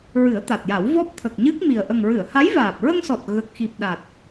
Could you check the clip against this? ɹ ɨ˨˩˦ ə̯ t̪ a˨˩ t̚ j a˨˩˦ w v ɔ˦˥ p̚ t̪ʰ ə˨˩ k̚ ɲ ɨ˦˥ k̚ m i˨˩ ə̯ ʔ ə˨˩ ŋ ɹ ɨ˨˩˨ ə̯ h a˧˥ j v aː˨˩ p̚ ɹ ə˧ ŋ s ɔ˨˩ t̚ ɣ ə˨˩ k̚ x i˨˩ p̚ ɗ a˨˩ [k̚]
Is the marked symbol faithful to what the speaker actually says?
no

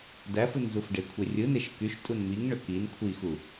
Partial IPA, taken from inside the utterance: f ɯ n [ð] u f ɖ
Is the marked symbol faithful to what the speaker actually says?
no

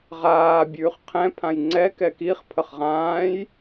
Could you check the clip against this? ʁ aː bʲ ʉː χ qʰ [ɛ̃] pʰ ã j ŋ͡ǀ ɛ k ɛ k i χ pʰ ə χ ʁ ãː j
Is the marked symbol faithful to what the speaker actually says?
yes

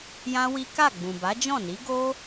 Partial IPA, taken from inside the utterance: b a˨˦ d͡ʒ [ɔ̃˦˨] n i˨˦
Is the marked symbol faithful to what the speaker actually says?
yes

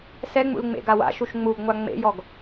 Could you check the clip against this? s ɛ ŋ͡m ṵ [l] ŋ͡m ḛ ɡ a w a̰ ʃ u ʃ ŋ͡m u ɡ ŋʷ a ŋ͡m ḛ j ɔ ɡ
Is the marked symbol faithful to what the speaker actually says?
yes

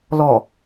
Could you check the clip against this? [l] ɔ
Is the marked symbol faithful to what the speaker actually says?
yes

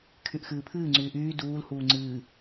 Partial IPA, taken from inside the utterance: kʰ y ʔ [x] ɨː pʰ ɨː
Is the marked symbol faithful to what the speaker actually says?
yes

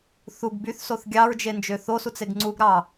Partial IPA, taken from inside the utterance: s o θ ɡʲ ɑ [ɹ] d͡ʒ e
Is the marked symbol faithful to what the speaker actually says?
yes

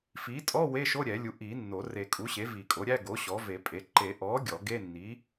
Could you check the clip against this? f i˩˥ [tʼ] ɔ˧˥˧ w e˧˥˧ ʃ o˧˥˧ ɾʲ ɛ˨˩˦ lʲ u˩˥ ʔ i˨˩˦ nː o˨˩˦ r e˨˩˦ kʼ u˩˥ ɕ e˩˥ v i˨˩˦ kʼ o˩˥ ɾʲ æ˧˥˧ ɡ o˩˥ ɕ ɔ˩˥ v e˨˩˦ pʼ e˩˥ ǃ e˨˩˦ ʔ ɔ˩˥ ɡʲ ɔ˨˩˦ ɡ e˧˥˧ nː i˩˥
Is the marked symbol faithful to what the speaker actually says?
yes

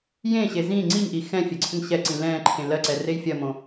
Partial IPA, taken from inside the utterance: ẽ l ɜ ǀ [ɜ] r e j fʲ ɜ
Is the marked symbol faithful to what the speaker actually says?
no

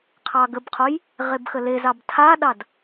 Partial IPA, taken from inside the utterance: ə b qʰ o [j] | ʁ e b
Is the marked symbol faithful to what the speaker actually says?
yes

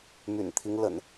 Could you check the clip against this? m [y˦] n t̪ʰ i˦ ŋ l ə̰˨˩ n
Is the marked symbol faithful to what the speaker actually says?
no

